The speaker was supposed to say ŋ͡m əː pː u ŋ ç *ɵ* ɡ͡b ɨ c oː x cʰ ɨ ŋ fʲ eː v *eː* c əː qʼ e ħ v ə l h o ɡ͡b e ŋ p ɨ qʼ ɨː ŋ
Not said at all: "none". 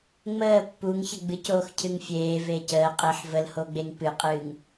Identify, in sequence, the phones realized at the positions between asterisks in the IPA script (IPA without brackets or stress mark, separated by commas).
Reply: ə, eː